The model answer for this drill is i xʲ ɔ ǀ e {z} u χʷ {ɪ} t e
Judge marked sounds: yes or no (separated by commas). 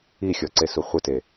no, yes